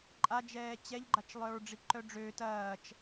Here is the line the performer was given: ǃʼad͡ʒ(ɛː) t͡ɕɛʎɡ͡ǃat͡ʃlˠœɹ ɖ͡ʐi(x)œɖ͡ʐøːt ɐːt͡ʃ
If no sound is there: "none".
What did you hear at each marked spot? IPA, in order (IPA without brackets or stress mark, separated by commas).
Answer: ɛː, ǃ